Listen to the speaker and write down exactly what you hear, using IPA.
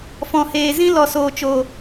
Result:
f ɔ̃˨ h eː˨ z ĩ˧ l ɔ˨ s oː˨ t͡ʃ oː˨

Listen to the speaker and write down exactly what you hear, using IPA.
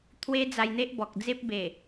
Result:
t̪ʰ w e˦ d͡z a˧ j n̪ e˦ ʔ b ɔ˨ k̚ d͡z e˦ p̚ b e˨˩

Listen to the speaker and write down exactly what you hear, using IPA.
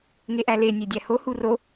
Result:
ŋ e ʔ æ l e nʲ e dʲ æ h o h u r o

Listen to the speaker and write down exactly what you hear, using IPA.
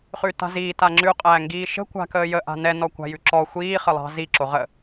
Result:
χ ʉ t a̤ z iː t a ŋ͡ǁ ʉ qʼ æː ŋ ɡ iː ʃ ə̤ kʷ a̤ k əː j ə ʔ a̤ n ɛ n ɔ kʷ a̤ j ʉ ǁ ɔ xʷ iː χ ə lˠ ɑ̤ z i ǁ o ʁ ə

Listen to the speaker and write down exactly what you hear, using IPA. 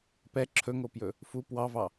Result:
p ɛ ǁʰ ɵ ŋ o p j ɵ | f u p w ɑ v ɑ

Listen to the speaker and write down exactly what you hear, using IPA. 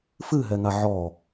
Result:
f ɨ ɦ ɛ ŋ a ʕ ɔ

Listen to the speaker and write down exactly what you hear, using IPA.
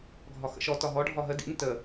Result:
ɡʱ ɒ x ə̰ ʃ ɔ t ɒ ɦ ɔ ɖʱ ɒ ɦ ə d ḭ n t ə

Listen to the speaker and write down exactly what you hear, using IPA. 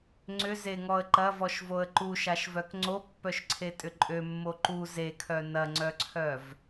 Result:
ŋ͡ǀ ʏ z e ŋ ɔ ə̯ ǃ ɐ v ɔ ʃ v o ə̯ ǃ u ʃ a ʃ v œ k ŋ͡ǀ o pː œ ʃ ǀʰ e tʼ ʏ ǃʼ ø mː o ǃ u z e kʰ œ n ɐ ŋ͡ǀ œ ǀʰ œ v

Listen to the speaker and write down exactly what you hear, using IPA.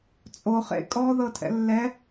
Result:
t͡sʼ o χ ḛ kʼ ɔ ð ɤ tʰ ɛ̰ lː ɛ

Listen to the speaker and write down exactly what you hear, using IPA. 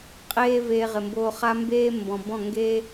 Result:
qʼ eː˦ v eː˧ ʁ ɪ˨ m b oː˧ χ a˦ m b eː˦ m b ɔ̃˨ b ɔ̃˦˨ ŋ ɡ e˦

